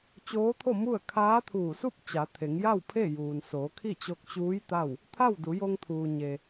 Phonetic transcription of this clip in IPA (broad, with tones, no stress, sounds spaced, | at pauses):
t͡ɕ oː˧˥ t̪ʰ o˥˨ m u˥˨ ə̯ kʰ aː˧˥ t̪ʰ uː˧˩ s u˥˨ p̚ t͡ɕ a˩˧ t̪ʰ e˩˧ ŋ j a˥˨ w pʰ e˥˨ j uː˩ n s oː˩˧ kʰ i˥˨ t͡ɕ o˧ k̚ t͡ɕ uː˧˥ j t̪ a˥˨ w | t̪ʰ a˥˨ w d u˩˧ j o˧ ŋ t̪ʰ uː˩ ɲ e˩